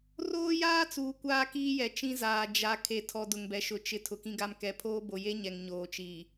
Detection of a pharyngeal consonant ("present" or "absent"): absent